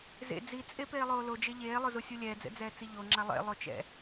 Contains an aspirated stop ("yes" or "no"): no